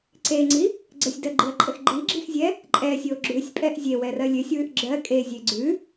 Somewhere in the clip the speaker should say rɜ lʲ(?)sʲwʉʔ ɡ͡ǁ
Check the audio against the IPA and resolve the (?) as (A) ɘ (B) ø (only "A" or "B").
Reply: B